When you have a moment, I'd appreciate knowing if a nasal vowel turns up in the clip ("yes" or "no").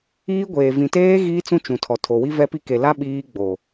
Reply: yes